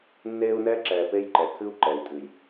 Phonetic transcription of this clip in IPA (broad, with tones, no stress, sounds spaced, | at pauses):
nː eː˦ u̯ n ɛː˦ ǁ ɛː˨ p e˦ j ǃ ɛ˨ kʰ ɨ˦ u̯ ǃ ɛ˨ i̯ tʼ ɨ˨ j